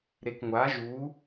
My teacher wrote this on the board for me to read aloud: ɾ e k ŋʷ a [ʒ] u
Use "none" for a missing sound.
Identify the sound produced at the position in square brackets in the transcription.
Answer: ʒ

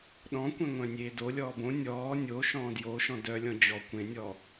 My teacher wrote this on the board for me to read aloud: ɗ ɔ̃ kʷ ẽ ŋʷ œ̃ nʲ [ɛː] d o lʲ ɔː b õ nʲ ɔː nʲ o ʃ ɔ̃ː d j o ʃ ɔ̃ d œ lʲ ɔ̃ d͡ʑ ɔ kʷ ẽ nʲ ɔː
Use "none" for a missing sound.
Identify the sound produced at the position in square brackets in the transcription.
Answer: eː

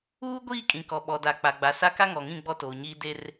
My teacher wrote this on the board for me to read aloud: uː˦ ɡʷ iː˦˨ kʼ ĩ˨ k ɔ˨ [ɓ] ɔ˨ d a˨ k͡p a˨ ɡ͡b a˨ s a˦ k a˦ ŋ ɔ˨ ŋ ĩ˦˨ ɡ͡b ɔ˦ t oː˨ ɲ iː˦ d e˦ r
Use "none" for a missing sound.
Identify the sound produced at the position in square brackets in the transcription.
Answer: ɓ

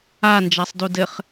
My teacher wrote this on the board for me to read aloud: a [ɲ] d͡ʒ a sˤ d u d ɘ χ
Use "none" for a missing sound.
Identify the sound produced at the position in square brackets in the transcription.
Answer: n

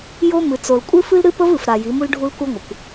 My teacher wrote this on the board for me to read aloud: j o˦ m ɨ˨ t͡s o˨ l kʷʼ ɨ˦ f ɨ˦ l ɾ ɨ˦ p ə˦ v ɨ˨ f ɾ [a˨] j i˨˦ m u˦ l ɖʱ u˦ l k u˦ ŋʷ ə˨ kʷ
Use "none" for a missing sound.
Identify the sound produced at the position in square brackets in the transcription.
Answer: a˨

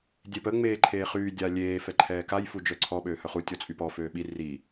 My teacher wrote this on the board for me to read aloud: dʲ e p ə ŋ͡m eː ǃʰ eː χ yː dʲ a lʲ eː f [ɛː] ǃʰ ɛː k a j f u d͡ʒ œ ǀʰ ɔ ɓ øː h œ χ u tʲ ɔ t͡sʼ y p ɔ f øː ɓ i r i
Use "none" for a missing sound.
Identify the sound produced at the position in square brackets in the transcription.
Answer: ɛ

